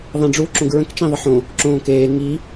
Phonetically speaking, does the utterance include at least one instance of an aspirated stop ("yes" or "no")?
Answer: no